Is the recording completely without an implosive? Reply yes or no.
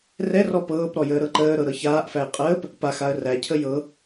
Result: yes